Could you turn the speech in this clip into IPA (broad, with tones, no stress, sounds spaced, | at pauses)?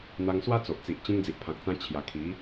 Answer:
n̪ a˧ ŋ s w a˦ t͡s o˨ ʔ t͡s i˨ ʔ t͡ɕ ẽ˧ ŋ d͡z i˨ ʔ pʰ ã˨ k̚ t͡s ã˧ t͡ɕʰ j a˨˩ kʰ i˨˦